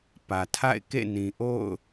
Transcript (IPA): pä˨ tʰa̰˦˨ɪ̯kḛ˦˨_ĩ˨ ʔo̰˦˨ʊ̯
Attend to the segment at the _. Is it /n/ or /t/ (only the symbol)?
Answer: n